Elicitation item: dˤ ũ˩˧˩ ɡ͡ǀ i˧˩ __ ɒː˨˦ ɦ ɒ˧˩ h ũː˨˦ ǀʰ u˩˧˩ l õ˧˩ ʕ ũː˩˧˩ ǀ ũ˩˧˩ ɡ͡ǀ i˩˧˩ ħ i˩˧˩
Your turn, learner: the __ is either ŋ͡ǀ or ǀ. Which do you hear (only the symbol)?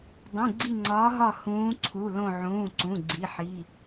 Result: ŋ͡ǀ